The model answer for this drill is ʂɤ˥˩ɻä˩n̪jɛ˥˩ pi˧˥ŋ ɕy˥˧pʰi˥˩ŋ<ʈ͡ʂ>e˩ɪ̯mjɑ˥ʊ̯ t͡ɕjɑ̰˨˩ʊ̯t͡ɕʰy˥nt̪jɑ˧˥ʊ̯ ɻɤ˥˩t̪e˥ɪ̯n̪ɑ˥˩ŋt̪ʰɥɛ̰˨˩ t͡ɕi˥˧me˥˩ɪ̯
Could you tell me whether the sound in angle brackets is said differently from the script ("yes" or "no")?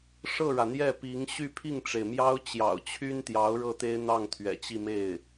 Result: no